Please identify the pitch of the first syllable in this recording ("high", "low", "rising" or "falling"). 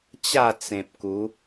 falling